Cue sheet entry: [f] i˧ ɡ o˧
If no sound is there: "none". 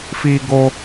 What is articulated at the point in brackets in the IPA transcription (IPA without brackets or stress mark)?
f